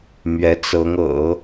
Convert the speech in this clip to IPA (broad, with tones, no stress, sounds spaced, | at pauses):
m ɥ ɛ˧˥ t͡s ɤ˧˥ ŋ ɤ̰˨˩˦